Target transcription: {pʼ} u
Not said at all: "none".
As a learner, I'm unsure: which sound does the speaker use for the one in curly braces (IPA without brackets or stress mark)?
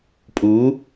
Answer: pʼ